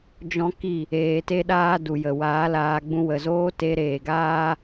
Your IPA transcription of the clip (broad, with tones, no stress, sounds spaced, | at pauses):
d͡ʒ ɔ̃˦ k i˦˨ | eː˧ t e˦ ɗ aː˦ d u˨ j ə˨ w aː˨˦ l aː˧ ɡ͡b ũ˧ w ə˨ z oː˦ t e˧ ɾ eː˨ ɡ aː˦